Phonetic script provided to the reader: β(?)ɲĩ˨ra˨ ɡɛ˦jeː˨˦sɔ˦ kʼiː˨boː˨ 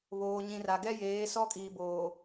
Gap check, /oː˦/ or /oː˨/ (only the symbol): oː˨